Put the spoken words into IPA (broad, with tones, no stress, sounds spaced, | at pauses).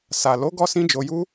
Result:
s a˨ l o˨˦ ɡ ɔ˦ s ĩ˦ d͡ʒ o˧ j u˦